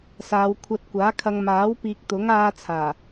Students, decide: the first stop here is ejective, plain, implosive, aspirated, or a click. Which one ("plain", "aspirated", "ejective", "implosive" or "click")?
aspirated